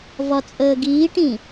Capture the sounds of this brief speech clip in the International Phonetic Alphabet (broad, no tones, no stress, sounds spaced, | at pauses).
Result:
v ɒ t͡sʼ əː ɡ iː ʈ ĩ